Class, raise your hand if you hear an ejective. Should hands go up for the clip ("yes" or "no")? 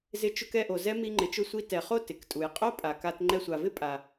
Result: yes